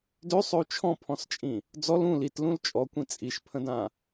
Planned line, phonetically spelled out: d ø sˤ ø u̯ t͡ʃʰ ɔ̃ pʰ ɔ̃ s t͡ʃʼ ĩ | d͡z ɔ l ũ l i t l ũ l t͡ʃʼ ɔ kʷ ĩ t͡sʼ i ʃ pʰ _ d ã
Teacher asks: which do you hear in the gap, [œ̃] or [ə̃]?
ə̃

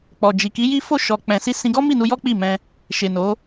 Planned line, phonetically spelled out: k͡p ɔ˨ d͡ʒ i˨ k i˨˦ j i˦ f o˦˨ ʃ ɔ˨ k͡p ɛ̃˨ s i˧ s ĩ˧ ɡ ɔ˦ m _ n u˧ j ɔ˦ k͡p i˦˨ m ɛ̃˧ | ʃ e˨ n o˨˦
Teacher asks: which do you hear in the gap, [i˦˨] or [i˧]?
i˦˨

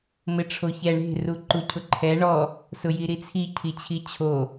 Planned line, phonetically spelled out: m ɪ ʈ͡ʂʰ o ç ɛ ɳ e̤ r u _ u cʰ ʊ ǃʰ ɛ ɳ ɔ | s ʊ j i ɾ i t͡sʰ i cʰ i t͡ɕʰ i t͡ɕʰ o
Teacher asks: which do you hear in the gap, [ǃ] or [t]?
ǃ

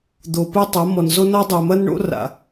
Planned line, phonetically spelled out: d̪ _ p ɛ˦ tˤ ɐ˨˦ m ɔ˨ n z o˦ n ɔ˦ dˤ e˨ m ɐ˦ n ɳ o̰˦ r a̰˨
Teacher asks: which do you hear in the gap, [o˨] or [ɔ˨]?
o˨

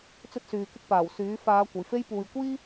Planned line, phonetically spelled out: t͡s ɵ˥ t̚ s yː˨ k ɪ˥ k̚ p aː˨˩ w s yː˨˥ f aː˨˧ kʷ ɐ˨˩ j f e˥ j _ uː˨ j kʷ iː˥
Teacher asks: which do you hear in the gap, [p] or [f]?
p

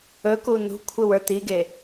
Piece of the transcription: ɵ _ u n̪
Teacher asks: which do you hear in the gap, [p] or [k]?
k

